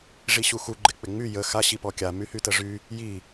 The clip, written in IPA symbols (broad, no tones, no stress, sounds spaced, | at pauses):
ʐ i ɕ u x u ɡ͡ǃ ɪ k͡p ɪ ŋ͡m y j ə x a ɕ i p ɔ kʲ a m y h y t ə ʐ y | j i